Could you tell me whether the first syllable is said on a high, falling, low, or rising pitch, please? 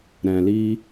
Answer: low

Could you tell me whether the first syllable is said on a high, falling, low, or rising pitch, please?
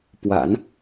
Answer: low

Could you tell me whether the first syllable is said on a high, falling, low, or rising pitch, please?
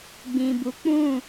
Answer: low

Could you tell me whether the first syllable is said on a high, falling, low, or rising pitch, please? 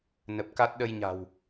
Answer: low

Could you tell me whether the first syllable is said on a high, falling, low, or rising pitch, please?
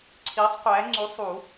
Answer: rising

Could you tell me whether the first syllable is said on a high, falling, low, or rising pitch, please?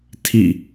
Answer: falling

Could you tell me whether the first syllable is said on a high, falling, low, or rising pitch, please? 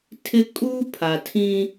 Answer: high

